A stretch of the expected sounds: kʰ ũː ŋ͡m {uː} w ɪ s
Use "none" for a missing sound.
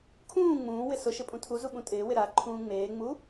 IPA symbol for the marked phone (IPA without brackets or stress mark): ũː